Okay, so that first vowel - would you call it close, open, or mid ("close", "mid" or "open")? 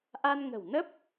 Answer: open